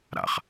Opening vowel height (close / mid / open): open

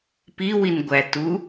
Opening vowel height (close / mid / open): close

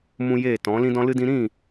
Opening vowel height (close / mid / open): close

